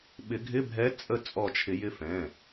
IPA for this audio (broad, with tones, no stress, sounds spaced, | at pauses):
ɓ ɪ˨˩˦ ɡʱ ɪ˧˥˧ bʱ ɛ˧˥ t͡sʼ ə˥˨ t͡sʼ ɔ˧˩ t͡ʃʰ ɪ˨˩˦ j ɪ˧˥ f ɛ̃˩˧˩